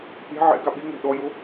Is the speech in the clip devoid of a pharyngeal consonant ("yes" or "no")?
no